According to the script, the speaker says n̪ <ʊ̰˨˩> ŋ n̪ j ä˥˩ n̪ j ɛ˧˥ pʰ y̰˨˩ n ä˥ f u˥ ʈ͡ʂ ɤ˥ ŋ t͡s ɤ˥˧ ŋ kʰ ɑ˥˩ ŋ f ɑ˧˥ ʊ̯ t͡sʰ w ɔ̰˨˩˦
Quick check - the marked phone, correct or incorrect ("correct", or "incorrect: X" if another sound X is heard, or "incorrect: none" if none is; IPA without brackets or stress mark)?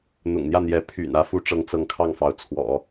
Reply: correct